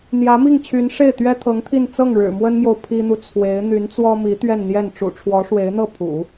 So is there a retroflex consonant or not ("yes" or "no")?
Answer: yes